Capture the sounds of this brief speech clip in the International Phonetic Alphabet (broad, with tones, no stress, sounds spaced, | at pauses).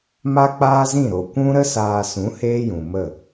m a˦ k͡p aː˦ z ĩ˦˨ ɾ o˨ kʷ ũ˦ ɾ ə˦ s aː˧ s ũ˨˦ h eː˦ j ũ˨ m ə˦˨